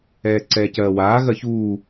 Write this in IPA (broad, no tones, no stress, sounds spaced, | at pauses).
ɛː ǀ ɛː c ɜː w aː ɣ ɜ ç uː